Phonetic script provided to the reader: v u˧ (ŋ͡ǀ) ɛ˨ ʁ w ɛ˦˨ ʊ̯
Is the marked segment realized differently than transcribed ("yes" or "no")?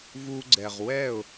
yes